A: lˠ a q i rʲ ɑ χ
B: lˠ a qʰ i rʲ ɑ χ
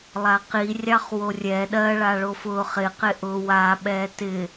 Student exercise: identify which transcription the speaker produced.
A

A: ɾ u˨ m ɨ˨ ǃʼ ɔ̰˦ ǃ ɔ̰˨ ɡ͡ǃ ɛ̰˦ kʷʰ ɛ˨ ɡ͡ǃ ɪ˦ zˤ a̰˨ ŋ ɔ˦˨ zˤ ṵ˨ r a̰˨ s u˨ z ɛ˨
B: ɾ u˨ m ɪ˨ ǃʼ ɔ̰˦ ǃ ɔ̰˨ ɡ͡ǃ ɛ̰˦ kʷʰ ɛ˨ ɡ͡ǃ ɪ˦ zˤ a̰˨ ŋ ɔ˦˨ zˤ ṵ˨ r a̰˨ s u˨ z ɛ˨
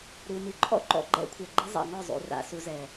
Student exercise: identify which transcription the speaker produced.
A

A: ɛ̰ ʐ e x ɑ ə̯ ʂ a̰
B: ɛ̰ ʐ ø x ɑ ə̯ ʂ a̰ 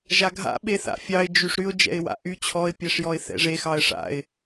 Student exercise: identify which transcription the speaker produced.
A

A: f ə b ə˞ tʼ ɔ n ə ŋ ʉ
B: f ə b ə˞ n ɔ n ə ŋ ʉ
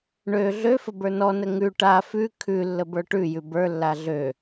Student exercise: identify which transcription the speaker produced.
B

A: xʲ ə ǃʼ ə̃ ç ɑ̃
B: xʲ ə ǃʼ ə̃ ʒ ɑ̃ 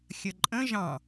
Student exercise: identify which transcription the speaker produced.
B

